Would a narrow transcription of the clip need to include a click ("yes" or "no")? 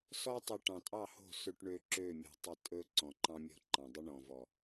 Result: yes